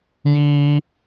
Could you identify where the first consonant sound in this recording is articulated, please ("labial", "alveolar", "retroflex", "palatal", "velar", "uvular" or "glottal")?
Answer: palatal